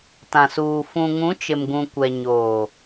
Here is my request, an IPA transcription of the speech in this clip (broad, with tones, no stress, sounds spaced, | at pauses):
t ã˨ s uː˨ f ũ˨ ŋ ũ˨˦ t͡ʃ ɪ˨ m ɡ ũ˨ kʷ ɛ˨ ɲ oː˨